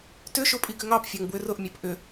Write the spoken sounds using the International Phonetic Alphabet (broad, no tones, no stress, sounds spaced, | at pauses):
t ʏ ʃ ʊ pʼ i ɡ ʏ ŋ ɑ p fʲ ɑ ŋ b w ʏ r ʊ ʔ mʲ ɑ p ʔ ʏ